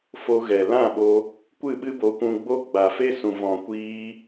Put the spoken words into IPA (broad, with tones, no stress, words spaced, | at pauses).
fo˧ɣɛ˨lã˦˨ɓo˧ | kʷɨ˦˨ɓɨ˦bo˧ kʷũ˧ɡ͡bo˦ ɡ͡ba˨fe˦sũ˨vɔ̃˨ kʷiː˧